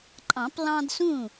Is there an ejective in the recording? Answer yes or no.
yes